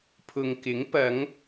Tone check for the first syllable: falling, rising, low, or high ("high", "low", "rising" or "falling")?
low